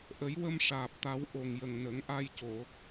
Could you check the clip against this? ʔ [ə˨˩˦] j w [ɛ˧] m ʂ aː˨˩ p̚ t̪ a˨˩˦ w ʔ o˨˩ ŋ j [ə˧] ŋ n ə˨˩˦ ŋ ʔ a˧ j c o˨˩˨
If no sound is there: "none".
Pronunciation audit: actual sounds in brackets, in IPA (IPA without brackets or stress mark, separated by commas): ə˨˩˦, ə˧, ə˨˩